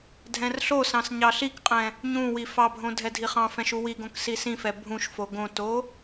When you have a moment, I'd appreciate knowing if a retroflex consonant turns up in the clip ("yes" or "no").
no